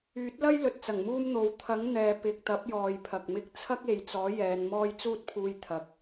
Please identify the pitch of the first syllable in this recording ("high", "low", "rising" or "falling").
rising